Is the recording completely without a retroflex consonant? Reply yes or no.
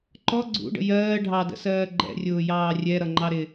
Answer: no